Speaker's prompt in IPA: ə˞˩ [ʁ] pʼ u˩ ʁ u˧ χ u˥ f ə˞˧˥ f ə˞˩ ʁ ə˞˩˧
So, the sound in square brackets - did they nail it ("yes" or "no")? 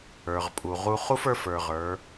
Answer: yes